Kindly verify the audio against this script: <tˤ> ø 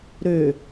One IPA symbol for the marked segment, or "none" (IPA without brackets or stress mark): ɾ